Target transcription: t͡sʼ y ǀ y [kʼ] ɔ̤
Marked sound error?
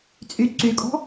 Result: no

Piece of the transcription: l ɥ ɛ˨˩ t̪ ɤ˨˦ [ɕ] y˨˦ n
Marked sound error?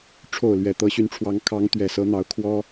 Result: no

